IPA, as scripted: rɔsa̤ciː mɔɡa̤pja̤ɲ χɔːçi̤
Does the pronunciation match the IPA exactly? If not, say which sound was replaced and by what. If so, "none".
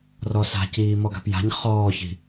none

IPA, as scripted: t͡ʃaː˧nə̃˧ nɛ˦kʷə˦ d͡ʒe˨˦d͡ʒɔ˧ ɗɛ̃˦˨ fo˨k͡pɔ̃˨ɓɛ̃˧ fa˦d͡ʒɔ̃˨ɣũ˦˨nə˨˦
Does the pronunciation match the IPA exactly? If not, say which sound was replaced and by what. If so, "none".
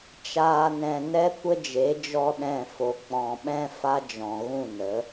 ə̃˧ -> ɛ̃˧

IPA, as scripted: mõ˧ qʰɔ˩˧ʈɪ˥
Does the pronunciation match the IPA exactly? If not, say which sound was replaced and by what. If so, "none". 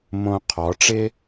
ʈ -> ʈ͡ʂ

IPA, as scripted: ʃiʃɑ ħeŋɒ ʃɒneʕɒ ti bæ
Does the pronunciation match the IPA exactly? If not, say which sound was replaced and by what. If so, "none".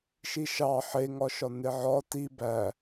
none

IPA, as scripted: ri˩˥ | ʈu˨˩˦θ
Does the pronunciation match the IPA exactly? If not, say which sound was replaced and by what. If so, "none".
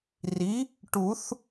none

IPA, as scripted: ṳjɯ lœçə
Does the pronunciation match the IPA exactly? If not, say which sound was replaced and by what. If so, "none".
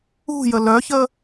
ɯ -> ə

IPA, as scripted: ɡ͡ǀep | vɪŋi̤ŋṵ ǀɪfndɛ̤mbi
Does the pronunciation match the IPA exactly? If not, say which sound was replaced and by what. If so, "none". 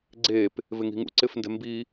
none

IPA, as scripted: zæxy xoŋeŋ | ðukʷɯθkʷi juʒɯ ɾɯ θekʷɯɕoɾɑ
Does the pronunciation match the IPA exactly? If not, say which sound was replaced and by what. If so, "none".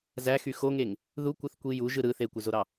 ɕ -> z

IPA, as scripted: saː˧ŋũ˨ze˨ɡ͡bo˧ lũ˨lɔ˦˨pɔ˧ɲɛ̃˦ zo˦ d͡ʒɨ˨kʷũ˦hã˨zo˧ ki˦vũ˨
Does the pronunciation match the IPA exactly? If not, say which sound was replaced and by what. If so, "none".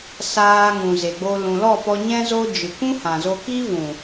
none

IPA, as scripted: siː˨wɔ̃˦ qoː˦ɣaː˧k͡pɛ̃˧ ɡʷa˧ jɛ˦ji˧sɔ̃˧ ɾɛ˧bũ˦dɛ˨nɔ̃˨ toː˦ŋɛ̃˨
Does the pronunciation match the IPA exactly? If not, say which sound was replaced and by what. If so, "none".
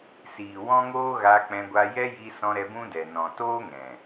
q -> ŋ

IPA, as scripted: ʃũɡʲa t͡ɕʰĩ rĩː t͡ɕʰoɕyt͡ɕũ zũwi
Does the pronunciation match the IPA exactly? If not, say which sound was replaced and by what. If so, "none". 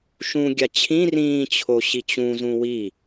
y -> i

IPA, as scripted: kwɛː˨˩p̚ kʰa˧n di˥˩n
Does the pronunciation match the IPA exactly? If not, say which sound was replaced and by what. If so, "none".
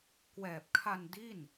none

